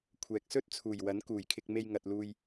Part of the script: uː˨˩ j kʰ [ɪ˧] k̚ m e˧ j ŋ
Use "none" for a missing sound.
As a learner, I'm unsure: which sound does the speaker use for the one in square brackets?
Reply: ɪ˧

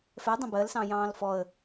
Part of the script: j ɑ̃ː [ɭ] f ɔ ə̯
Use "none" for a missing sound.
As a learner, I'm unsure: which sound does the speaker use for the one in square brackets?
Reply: l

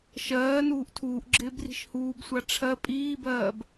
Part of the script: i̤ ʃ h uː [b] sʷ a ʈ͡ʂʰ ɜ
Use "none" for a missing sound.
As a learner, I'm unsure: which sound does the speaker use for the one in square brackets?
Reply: b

